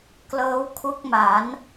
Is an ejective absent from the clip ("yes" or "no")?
yes